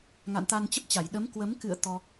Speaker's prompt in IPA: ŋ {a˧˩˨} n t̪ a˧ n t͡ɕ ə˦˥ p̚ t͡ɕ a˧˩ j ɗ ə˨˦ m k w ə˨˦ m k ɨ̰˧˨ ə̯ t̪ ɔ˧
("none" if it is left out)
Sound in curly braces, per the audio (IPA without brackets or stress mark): a̰˧˨